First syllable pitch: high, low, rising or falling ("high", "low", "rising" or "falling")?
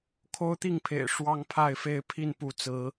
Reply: high